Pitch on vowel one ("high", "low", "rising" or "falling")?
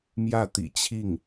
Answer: falling